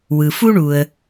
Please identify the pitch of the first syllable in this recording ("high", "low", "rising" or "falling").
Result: low